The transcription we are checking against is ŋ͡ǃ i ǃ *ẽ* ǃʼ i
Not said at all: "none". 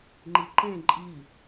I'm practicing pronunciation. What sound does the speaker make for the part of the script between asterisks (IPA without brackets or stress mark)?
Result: ẽ